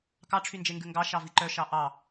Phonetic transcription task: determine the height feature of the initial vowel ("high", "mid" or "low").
low